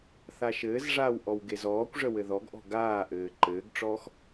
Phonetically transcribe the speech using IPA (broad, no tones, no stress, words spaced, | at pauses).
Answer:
θaʃɘːzʐaːw ʔɔwɡezɔːkʷʐə wɘðɔɡʔɔ̤ ɡaːʔɘː ǃɘːɡʈ͡ʂɔːx